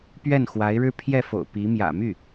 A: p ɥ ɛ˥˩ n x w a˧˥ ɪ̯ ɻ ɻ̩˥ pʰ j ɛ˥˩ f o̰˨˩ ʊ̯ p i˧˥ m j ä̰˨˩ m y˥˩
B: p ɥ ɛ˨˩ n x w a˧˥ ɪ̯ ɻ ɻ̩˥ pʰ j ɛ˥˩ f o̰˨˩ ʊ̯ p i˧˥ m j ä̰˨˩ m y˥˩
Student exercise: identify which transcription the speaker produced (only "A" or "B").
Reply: A